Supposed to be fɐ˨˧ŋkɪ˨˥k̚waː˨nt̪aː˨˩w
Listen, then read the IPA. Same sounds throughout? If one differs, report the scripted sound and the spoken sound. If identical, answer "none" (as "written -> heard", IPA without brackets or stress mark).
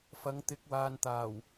k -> t̪